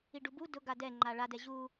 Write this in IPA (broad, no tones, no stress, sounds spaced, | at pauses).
i ɖ u b u d ʊ ɡ a d ɛ ŋ͡ǃ a ɭ a d ɛ ʑ u